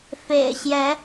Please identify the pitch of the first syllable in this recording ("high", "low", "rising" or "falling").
low